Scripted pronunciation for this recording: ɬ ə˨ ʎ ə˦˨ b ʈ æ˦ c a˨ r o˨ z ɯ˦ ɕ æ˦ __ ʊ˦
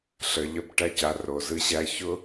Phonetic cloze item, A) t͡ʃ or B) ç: B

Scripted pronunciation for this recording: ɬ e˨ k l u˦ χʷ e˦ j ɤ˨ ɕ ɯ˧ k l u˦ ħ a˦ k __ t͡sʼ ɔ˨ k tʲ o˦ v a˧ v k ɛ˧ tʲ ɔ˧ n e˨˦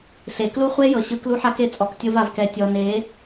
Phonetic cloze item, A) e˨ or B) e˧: B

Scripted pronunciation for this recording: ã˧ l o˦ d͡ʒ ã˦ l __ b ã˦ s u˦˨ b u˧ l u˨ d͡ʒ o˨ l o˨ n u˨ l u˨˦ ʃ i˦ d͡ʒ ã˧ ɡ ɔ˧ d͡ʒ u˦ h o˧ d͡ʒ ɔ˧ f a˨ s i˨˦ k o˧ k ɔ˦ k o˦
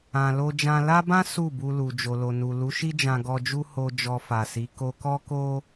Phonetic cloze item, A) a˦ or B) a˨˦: A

